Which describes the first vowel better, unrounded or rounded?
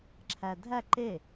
unrounded